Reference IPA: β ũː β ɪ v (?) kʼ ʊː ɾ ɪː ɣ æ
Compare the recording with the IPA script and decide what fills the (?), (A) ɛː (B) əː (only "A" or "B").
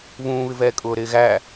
A